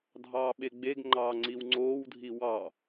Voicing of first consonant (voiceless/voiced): voiced